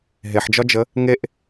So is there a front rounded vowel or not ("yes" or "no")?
no